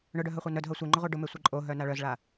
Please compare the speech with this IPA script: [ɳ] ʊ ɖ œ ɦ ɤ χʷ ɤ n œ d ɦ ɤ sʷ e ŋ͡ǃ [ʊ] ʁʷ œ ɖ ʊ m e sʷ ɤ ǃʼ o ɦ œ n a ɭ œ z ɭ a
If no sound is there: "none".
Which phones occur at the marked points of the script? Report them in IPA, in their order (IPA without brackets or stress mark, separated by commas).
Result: ɳ, ʊ